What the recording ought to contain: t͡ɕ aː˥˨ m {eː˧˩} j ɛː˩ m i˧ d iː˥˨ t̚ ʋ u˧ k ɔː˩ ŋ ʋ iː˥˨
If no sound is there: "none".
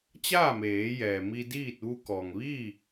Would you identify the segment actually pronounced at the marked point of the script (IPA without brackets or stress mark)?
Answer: eː˩˧